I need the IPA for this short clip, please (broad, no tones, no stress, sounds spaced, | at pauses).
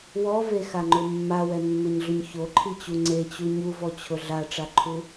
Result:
w ɔ v e x a ŋ͡ǃ ʊ mː a w ɛ mː e ɲ ɮ ʊ ɲ ç o ǃʰ i t͡ɕ u ŋ͡ǀ e t͡ɕ u ɲ u v ɔ t͡ɕʰ ʊ ɮ a ʈ͡ʂ a ǃʰ u